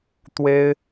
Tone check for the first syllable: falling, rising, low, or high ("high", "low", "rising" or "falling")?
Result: high